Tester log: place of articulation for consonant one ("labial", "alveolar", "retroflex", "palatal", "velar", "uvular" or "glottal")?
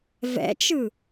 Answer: labial